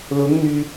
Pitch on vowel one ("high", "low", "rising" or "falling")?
rising